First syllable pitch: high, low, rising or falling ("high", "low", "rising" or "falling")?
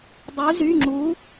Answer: rising